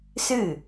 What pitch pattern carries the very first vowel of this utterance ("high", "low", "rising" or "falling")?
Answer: falling